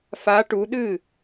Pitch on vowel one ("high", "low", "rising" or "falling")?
rising